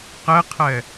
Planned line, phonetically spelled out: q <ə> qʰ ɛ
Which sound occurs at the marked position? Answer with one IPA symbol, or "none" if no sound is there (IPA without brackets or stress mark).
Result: ɛ